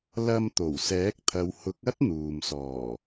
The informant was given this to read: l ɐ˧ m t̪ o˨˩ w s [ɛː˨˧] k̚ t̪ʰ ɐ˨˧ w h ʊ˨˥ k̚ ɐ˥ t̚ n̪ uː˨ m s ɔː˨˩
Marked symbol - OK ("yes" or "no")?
no